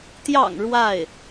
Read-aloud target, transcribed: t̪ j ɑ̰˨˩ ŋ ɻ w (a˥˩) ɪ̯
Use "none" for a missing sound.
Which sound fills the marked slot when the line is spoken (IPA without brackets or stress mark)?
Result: a˥˩